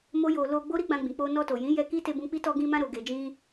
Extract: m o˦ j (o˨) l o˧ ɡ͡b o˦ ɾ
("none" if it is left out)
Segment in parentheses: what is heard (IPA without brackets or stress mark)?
o˧